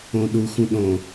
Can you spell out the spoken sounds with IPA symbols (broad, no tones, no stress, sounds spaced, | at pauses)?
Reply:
õ ɗ u x ũ ɗ õ